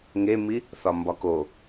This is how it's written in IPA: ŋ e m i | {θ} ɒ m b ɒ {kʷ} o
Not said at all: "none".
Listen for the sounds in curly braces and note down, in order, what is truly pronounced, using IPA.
θ, k

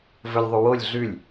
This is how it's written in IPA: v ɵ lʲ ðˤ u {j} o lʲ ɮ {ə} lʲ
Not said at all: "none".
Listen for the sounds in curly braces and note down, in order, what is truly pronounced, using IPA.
w, ʉ

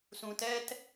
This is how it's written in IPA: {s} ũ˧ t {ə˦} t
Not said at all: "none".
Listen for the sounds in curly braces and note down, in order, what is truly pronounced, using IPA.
s, ɛ˦

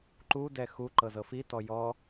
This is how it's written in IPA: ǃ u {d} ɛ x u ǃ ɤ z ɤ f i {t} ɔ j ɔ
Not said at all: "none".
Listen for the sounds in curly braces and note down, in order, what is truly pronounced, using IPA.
d, t

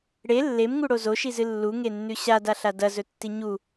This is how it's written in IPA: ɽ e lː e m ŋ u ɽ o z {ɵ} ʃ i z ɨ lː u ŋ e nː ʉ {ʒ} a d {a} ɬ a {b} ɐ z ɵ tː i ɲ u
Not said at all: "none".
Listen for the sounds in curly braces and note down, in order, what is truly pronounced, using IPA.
o, ɕ, a, d

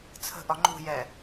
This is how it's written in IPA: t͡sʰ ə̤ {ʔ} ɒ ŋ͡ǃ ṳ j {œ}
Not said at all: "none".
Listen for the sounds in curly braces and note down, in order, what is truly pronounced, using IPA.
ʔ, ɛ

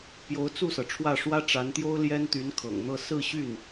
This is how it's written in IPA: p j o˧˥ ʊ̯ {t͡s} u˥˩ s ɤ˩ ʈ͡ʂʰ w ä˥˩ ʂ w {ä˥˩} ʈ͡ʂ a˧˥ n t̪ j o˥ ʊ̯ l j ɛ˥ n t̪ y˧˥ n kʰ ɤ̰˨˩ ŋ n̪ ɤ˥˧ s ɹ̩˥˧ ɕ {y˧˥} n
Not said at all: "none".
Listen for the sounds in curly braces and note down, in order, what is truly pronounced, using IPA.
t͡s, ä˥, y˥˩

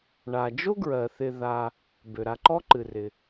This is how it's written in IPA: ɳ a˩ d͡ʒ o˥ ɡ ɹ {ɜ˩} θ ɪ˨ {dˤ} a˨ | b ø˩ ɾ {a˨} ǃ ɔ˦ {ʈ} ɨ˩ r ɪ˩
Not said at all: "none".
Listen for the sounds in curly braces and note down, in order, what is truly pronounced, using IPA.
ɜ˩, ð, a˨, ǃ

